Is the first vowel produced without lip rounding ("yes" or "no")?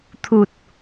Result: no